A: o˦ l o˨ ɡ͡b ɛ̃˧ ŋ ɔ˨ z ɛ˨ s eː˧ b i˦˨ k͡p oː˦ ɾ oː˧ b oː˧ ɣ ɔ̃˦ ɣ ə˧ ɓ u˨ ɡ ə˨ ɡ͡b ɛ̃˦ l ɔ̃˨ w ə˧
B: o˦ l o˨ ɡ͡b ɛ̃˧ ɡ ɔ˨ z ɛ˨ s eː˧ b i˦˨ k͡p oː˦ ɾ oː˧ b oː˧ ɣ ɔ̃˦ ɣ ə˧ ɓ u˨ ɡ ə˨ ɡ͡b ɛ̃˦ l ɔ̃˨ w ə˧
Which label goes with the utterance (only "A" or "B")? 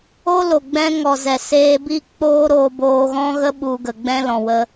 A